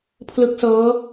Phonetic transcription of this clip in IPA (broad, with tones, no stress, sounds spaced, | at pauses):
pʰ l ɯ˦˥ k̚ s ɤː˦˥